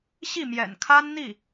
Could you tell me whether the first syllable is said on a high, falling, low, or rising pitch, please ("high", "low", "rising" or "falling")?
falling